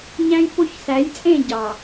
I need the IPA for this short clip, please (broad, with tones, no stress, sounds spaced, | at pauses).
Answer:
ɲ æ̃˦ j p o˦ ç s æ˨˦ j t͡sʼ ẽ˦˨ ɟ ɑ˨